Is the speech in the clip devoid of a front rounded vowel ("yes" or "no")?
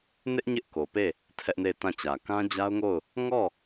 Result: yes